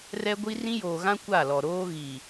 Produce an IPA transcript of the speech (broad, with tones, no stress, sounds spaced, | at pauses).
r ɛ˦ ɡʷ i˦ r ĩ˦ j oː˨ ɣ ã˦ kʷ a˦˨ l ɔ˨ ɾ oː˦ ɣ i˨